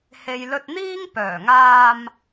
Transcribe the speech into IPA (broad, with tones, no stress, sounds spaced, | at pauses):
h e˨ j l ɵ˧ t̚ n̪ iː˥ ŋ p œː˨˩ ŋ aː˧ m